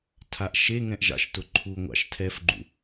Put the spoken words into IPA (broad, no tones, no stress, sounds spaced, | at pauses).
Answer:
tʰ a ʔ ʃ e ŋ ɛ̃ ʔ ʒ ɑ̰ ʃ t ʊ ǃʰ u ŋʷ ɑ̰ ʃ tʰ ɛ f ɡ͡ǃ ṵ